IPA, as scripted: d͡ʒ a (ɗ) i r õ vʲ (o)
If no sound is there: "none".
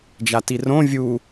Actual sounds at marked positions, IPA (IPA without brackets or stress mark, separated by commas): t, u